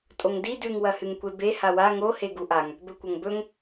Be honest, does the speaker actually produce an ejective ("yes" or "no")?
yes